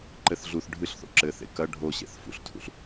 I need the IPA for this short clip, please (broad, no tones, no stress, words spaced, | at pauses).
ǃɘθ ɮuθ ɖʱɨɬ θo̰ǁɘ θḛkɐ ɖʱoɕḛθ fṵɬtʰṵɬ